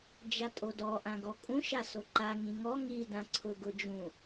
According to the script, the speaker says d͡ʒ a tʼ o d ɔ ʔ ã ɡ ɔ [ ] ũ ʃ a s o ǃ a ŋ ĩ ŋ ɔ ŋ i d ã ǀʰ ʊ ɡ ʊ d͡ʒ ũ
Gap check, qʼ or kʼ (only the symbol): kʼ